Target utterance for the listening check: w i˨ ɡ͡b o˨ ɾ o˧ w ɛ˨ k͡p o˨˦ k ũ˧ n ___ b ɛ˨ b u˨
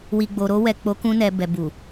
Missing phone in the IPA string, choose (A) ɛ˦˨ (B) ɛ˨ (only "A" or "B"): B